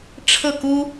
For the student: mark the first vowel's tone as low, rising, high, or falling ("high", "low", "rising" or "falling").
falling